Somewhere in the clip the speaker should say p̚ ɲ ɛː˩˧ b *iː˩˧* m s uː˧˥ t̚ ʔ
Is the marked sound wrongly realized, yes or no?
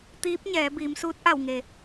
no